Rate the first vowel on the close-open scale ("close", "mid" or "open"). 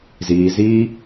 close